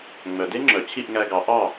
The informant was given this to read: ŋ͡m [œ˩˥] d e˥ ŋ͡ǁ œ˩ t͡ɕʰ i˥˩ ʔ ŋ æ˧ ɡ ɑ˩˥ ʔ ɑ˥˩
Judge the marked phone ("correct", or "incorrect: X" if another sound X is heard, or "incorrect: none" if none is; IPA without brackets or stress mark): incorrect: œ˩